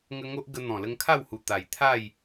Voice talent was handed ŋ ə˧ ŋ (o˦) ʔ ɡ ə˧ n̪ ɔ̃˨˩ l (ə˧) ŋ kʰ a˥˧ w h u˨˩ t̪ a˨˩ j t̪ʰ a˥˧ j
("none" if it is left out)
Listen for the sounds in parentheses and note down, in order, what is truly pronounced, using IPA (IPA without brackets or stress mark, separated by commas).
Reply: o˦, ə˧